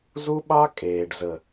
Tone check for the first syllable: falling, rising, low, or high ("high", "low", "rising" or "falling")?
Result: high